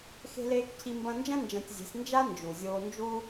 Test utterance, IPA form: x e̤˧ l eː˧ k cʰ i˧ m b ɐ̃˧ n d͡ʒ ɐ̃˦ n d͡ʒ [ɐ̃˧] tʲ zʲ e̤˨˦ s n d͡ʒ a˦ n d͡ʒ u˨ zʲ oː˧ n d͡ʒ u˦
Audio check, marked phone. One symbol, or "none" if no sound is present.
ɐ̃˧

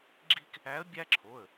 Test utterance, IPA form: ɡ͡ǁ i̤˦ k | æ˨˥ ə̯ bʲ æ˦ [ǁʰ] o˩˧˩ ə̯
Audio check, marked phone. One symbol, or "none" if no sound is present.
ǁʰ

